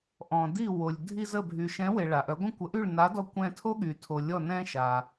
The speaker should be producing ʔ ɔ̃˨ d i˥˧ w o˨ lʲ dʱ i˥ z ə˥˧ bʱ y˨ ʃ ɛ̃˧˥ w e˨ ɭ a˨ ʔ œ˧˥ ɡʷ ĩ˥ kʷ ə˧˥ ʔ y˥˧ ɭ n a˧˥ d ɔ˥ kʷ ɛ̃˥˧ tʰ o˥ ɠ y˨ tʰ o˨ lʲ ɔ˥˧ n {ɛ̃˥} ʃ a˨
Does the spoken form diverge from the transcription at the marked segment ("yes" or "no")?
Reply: no